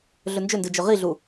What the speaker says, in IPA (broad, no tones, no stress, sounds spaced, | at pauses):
ɮ ɵ n d͡ʒ ɵ n d ɨ d͡ʒ ɵ ʁ i ɮ u